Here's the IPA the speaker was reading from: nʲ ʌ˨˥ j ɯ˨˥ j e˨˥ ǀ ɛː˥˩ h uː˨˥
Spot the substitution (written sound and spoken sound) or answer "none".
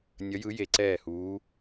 none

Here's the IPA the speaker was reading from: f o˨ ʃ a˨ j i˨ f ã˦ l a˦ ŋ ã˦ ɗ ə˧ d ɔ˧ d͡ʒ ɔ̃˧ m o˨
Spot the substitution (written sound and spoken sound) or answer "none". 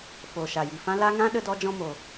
none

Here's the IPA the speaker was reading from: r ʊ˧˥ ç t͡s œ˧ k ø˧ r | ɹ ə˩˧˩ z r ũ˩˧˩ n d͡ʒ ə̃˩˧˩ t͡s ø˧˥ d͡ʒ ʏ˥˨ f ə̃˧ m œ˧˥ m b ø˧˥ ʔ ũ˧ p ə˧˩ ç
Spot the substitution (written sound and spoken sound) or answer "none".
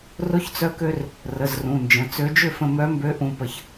ɹ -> r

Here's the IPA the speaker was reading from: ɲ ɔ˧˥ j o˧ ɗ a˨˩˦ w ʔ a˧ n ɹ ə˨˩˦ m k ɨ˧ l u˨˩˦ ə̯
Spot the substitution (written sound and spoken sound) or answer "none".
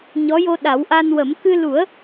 ɹ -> w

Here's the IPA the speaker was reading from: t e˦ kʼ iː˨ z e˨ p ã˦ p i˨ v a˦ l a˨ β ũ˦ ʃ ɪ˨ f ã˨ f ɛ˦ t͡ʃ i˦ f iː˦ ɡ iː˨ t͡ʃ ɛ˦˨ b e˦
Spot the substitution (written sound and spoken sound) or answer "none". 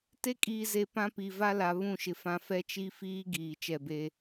ũ˦ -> ũ˦˨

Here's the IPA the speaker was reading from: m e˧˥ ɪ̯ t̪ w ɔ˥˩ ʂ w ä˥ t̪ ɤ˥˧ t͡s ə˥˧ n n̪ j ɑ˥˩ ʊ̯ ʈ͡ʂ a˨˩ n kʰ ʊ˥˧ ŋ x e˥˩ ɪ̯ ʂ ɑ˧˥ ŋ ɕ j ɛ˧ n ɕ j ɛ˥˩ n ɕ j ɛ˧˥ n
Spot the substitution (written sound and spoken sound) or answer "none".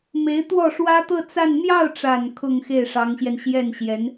ə˥˧ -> a˥˧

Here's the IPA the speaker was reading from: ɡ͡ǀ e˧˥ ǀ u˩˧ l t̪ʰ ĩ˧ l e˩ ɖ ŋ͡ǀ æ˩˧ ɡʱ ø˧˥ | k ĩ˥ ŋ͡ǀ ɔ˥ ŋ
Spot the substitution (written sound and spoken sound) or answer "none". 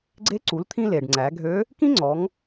ɔ˥ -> ɔ˩˧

